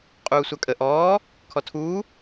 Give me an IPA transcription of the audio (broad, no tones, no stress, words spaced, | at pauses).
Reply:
qʼuːsʷakʼə ʔɔː | kʰɔtʰuː